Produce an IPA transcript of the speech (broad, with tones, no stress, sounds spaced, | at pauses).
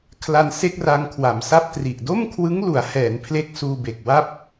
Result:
kʰ l a˧ n s e˥˩ k̚ r a˧ ŋ kʰ w a˩˦ m s a˥˩ p̚ t r i˨˩ ʔ d o˥˩ m kʰ w ɯ˦˥ ŋ l u˩˦ a̯ h ɛː˩˦ n pʰ l e˦˥ k̚ s uː˧ b e˨˩ k̚ w a˥˩ p̚